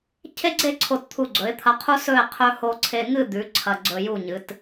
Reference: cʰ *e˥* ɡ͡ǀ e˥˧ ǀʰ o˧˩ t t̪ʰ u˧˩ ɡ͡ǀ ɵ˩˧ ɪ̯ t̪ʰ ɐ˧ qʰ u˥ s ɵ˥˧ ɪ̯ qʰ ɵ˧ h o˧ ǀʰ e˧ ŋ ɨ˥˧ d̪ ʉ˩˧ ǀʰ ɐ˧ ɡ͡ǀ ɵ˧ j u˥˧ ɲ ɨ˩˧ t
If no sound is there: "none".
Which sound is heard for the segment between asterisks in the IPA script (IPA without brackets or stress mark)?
e˥